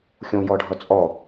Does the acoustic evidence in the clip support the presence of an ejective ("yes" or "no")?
yes